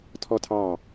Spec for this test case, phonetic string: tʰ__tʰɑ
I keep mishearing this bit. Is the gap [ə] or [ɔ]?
ɔ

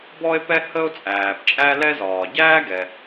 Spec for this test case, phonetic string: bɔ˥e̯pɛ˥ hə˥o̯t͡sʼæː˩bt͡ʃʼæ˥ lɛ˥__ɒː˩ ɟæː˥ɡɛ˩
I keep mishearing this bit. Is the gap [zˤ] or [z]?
z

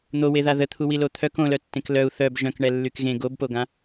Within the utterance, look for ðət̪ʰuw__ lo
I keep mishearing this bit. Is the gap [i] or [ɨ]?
i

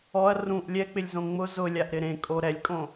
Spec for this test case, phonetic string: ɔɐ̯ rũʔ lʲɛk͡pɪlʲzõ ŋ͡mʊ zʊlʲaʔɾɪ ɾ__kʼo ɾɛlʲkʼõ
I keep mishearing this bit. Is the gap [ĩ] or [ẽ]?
ẽ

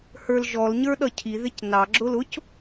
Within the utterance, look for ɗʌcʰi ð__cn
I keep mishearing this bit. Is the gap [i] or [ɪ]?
ɪ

